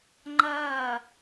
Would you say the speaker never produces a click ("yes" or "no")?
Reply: no